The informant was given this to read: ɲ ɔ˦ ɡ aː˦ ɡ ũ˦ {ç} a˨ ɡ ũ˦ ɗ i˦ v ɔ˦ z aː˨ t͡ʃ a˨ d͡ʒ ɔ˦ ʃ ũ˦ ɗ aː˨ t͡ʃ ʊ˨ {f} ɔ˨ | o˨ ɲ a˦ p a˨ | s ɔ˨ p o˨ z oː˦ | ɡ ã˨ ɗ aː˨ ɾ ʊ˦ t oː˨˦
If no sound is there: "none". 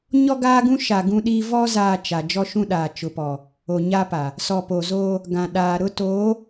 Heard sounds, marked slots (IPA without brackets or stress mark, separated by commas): ʃ, p